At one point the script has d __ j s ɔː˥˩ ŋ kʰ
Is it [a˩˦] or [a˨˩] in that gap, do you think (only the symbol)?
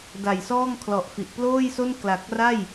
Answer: a˨˩